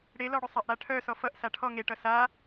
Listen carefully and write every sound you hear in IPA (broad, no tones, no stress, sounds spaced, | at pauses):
ɽ e l ɔ ɽ ʏ sˤ a ʔ ɽ a ʈʰ œ s ɔ f ʌ ʔ s a ʈʰ ɔ ŋ e ʈ ʌ s a